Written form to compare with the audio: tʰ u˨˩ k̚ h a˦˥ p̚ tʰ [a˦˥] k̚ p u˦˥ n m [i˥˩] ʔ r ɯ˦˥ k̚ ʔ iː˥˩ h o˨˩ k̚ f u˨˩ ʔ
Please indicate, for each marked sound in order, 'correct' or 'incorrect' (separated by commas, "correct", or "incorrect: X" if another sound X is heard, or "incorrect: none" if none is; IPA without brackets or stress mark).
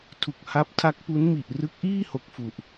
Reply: correct, incorrect: i˨˩